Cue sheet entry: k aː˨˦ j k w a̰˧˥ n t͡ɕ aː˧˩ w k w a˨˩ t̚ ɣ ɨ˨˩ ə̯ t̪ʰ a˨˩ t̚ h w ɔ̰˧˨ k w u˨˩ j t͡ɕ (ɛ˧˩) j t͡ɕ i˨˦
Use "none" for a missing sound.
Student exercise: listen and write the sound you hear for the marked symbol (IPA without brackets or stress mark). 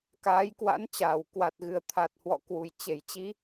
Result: e˧˩